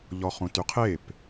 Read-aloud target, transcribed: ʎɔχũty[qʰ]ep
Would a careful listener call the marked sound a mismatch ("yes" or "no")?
no